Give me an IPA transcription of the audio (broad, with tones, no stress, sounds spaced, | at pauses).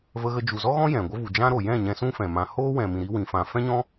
v ə˧ ɣ ə˧ d͡ʒ u˨ z ɔ˦ ɣ ɔ̃˦ j ɛ̃˨ ɡʷ ə˦ v u˨ d͡ʒ ã˦ ɾ o˨ j ɛ̃˦˨ ɲ ɛ̃˧ s ũ˦ f ɛ̃˨ m ã˧ h oː˦ w ɛ̃˨ m ĩ˨ ɾ i˦ w ĩ˨ f ã˨ f ɛ̃˦ ɲ ɔ̃˦